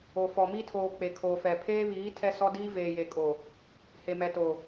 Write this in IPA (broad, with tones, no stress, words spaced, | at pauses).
o˨ fɔ˨mi˦tʰoː˨ k͡pe˨kʰoː˨fɛ˨ pʰeː˦βiː˨˦ tʰɛ˦sɔ˦diː˦ veː˨je˨kʼo˨ | he˨ mɛ˨to˨